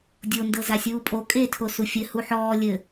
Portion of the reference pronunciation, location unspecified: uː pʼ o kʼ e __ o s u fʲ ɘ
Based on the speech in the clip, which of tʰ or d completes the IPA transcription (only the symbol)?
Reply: tʰ